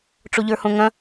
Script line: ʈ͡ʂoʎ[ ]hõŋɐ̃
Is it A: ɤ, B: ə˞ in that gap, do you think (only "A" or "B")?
B